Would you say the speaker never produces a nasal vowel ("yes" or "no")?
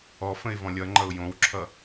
no